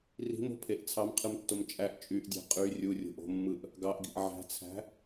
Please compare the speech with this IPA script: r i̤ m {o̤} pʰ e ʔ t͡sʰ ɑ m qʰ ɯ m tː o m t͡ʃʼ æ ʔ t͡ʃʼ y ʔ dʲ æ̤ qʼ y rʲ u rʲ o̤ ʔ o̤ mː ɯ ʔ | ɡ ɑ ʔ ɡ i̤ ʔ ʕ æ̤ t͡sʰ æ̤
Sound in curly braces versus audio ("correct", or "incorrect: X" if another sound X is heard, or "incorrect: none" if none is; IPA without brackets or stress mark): correct